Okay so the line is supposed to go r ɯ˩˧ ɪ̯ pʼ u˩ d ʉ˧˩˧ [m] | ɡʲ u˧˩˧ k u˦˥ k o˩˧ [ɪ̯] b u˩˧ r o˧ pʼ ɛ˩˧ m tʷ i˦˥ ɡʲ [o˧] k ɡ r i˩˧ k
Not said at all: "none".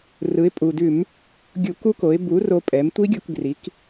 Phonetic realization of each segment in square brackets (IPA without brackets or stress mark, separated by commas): m, ɪ̯, o˧